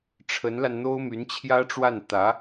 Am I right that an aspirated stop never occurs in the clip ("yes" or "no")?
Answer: no